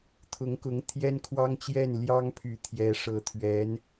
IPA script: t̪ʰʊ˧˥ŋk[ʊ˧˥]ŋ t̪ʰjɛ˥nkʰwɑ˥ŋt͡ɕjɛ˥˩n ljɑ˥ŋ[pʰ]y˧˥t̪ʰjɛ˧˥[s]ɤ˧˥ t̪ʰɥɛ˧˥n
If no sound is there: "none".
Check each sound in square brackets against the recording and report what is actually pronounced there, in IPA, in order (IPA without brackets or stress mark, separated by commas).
ʊ˧˥, pʰ, ʂ